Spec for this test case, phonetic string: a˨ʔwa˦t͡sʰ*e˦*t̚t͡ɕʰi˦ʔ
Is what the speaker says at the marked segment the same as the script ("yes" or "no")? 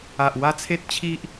yes